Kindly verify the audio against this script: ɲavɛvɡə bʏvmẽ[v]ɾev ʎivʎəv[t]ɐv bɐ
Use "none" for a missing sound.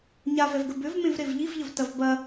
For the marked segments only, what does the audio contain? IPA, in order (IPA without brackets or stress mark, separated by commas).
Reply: v, t